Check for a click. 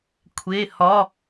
absent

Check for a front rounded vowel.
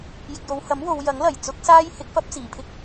absent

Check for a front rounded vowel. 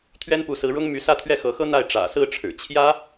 present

